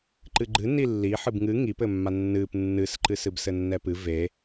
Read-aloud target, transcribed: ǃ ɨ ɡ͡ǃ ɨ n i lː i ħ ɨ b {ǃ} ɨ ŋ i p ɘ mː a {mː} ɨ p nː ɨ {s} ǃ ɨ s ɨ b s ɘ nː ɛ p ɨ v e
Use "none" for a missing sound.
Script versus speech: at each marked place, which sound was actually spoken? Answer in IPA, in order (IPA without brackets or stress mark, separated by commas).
ŋ, nː, s